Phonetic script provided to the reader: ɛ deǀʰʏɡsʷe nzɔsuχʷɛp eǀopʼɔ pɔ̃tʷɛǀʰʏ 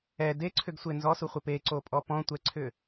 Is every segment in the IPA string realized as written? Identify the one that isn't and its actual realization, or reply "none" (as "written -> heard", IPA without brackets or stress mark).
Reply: none